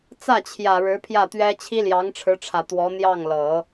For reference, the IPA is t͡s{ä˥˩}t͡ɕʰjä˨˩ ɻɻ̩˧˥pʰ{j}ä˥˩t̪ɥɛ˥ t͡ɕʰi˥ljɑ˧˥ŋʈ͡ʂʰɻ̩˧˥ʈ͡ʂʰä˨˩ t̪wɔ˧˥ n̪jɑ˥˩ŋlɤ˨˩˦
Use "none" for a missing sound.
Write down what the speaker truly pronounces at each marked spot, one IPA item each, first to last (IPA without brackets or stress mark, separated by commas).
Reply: ä˥˩, j